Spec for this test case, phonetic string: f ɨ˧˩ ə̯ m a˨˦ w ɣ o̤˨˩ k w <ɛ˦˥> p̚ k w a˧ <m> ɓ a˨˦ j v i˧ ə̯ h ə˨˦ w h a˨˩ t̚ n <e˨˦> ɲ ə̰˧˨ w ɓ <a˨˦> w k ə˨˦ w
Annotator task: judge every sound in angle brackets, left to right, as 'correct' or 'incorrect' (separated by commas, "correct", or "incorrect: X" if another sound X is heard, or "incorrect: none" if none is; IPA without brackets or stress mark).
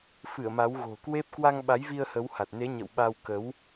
incorrect: e˦˥, incorrect: ŋ, correct, incorrect: a˧